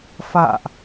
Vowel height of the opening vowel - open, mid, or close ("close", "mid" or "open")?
open